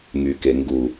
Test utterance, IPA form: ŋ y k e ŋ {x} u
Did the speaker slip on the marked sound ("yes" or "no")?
yes